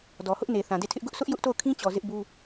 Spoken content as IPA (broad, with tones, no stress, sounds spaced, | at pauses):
d ɔ˨ h ʊ˦ ʔ n e˨ θ ã˨ d e˦˨ tʰ ɪ˦ ʔ ɡ ʊ˦ ʔ s ʊ˦ ʔ j ʊ˦ ʔ t o˦˨ ʊ̯ kʰ ĩ˦ t͡ɕ ɔ˨ z ɪ˦ ʔ b u˦